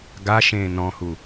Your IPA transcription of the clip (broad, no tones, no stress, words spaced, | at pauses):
ɡaʃẽː nɔ̃hu